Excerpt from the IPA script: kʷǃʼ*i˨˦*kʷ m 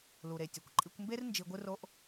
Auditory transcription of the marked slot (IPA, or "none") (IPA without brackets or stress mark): i˧